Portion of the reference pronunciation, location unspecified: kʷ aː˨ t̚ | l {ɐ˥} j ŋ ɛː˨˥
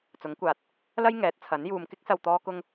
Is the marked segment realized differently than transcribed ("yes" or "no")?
no